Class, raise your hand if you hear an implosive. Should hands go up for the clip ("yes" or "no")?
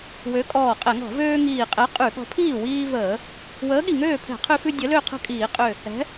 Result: yes